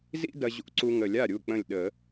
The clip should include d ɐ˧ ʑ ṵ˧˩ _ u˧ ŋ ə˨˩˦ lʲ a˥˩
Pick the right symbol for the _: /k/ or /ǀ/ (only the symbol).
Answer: ǀ